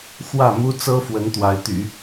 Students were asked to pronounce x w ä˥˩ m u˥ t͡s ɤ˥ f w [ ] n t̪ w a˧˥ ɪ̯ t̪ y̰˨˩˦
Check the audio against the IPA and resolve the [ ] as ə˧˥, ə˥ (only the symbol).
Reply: ə˧˥